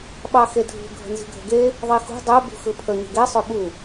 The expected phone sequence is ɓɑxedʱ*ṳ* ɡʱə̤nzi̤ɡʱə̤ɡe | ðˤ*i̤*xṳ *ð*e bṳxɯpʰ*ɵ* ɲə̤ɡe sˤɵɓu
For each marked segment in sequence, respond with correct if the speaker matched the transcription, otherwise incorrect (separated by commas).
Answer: correct, incorrect, incorrect, incorrect